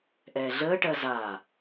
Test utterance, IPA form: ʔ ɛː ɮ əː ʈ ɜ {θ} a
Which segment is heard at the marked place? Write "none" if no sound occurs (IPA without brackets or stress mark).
z